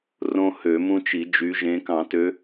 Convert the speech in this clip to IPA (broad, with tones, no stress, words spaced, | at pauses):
rõ˦hø˨˩˦ mũ˦t͡ʃi˨˩˦d͡ʒy˨˦ʒẽ˨˦ kɑ̃˨˩˦tø˨˦